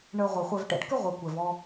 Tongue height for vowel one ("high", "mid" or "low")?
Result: mid